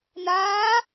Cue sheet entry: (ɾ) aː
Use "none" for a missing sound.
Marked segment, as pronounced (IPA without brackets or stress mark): n